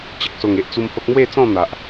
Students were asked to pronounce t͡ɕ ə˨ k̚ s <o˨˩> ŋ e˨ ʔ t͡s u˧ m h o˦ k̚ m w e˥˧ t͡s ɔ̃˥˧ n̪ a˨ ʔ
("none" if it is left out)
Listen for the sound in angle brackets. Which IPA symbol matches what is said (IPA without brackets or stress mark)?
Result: o˨˩